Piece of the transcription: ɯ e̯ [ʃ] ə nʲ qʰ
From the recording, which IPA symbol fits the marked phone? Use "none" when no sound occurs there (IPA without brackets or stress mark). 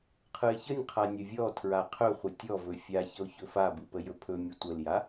ç